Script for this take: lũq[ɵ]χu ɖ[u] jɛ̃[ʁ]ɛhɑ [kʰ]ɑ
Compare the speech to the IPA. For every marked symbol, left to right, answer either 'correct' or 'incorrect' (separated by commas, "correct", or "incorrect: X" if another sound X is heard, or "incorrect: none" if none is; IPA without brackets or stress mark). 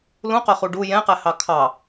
correct, correct, incorrect: q, correct